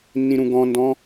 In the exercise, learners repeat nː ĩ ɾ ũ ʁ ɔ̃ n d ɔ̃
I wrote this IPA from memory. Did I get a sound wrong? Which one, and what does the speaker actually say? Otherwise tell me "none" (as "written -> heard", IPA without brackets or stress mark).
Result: ʁ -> ɡ